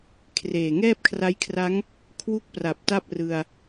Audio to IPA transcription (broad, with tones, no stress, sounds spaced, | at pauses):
kʰ r eː˨˩ ŋ ɛː˥˩ p̚ kʰ r a˦˥ j kʰ r a˦˥ ŋ | kʰ w u˥˩ k̚ p r a˨˩ p̚ t a˥˩ p̚ r ɯ˧ a̯